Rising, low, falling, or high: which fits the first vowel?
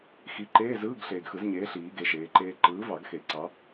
rising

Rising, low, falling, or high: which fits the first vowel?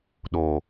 low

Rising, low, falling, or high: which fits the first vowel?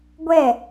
falling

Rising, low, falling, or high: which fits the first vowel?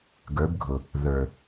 rising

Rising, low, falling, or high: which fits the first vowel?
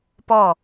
falling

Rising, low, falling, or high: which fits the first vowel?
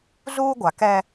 high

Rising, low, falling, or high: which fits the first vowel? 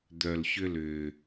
low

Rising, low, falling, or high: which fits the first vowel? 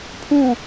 falling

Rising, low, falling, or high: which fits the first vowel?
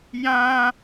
high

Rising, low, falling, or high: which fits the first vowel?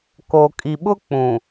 low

